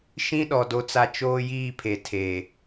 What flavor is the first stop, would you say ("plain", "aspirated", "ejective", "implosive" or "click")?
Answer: implosive